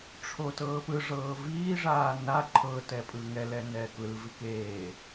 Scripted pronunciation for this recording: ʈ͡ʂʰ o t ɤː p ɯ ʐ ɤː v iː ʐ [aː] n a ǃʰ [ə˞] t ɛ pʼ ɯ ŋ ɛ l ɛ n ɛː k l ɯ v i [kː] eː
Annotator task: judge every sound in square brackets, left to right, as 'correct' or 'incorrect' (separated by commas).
correct, incorrect, incorrect